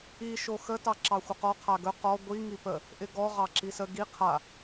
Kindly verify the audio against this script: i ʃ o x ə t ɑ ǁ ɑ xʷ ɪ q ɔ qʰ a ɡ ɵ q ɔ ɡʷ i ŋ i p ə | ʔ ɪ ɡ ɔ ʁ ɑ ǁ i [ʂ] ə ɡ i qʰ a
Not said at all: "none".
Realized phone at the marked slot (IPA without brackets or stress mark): s